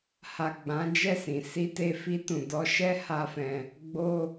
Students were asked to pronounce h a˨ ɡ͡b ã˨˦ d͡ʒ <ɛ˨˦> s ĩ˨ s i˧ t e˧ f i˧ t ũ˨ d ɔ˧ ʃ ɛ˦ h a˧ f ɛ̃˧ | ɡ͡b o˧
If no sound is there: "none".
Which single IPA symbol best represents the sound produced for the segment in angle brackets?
ɛ˦˨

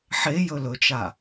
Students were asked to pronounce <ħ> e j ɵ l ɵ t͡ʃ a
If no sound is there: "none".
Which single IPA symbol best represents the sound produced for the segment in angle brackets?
ħ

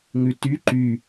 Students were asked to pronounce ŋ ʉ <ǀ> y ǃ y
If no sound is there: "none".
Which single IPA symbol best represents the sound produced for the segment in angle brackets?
t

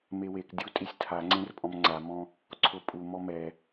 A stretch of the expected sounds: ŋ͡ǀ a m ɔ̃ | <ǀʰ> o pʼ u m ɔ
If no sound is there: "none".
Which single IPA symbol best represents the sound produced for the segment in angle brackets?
ǀʰ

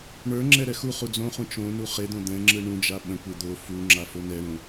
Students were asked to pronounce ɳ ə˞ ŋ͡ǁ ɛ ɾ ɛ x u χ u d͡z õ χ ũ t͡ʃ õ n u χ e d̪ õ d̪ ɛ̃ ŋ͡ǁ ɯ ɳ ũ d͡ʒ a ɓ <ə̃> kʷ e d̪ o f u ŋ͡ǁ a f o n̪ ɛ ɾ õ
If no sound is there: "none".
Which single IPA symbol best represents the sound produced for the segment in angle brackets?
ə̃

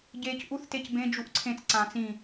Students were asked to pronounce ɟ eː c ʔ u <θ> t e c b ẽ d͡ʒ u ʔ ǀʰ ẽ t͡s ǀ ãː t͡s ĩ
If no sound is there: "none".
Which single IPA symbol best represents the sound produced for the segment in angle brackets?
θ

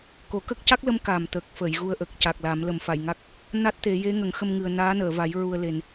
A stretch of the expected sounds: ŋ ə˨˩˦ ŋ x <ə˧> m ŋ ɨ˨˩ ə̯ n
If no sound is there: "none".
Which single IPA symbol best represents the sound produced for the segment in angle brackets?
ə˧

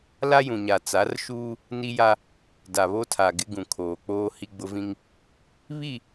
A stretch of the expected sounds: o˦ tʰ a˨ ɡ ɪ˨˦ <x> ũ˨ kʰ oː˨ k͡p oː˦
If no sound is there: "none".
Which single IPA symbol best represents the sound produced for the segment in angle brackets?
ɡ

